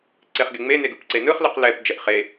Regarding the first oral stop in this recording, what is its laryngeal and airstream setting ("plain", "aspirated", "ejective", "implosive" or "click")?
click